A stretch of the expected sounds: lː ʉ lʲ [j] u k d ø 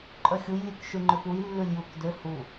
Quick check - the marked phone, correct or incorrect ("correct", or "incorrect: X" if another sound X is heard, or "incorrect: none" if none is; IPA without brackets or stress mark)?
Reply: correct